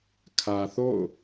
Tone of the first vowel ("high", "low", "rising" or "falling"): low